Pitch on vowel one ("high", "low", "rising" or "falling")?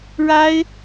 high